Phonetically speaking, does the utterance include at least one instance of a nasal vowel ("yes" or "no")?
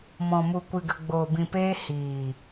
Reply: yes